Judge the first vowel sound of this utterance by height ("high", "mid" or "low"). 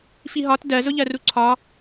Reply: high